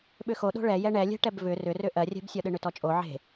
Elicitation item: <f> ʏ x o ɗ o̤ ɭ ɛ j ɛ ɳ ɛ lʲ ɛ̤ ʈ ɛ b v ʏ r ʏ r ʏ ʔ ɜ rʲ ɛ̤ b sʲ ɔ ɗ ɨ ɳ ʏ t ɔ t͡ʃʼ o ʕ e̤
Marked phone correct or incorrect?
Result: incorrect